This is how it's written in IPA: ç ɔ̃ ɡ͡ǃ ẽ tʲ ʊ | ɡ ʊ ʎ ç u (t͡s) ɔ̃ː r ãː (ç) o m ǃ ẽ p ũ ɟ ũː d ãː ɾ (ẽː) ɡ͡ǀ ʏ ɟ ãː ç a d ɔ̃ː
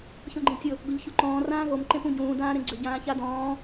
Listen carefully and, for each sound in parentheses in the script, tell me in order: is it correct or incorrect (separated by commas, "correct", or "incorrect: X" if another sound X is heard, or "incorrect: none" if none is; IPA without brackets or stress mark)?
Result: incorrect: ǃ, incorrect: ɣ, incorrect: ẽ